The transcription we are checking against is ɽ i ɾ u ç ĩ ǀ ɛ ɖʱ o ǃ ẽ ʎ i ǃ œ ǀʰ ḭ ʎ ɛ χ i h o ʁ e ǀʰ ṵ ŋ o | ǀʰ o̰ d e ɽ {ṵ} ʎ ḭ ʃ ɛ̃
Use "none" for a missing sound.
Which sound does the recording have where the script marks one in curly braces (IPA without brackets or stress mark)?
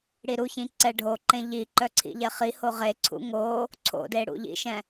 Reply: ṵ